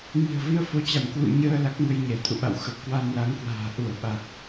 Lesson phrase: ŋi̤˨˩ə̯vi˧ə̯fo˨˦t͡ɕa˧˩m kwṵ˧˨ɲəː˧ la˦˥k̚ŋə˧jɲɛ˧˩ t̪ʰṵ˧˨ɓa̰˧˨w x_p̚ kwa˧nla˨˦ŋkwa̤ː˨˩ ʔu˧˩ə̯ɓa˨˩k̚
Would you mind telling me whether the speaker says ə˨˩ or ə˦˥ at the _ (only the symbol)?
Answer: ə˨˩